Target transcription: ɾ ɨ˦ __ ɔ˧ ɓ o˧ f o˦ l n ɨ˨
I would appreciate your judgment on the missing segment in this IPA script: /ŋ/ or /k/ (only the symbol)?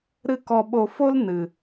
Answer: k